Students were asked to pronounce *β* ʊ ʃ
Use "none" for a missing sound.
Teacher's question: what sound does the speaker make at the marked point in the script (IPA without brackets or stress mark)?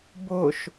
b